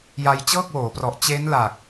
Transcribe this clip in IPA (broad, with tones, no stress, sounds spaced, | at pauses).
j a˧ j t͡ɕ ɤː˥˩ k̚ w oː˩˦ p r ɔ˨˩ ʔ t͡ɕ e˦˥ n l a˨˩ k̚